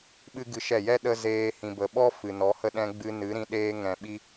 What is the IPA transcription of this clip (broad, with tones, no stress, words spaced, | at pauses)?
ɓɨ˦ɡɨ˧ʃɛ˦˨ jɛ˦ ɗə˧ zeː˧ hĩ˨bə˨ ɓɔ˦ fɨ˨nɔ˨˦hə˦ ɗɛ̃˧ ɡ͡bɨ˧ nɨ˨˦ ɾĩ˧ ɗeː˧ ŋɛ̃˨ɓi˧